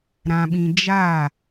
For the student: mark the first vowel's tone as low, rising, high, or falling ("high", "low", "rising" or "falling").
low